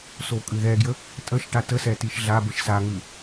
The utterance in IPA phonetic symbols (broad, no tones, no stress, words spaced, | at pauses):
sokʼʉðɛɡjə | tʼəʃʈa təsɛ tiʃɮabəʃ saŋʉ